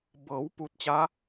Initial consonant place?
labial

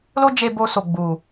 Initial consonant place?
alveolar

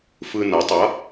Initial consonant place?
labial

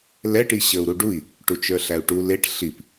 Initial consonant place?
alveolar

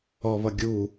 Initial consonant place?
labial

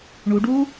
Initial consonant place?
retroflex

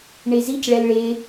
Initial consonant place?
retroflex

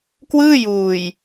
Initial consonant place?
velar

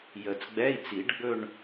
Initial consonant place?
palatal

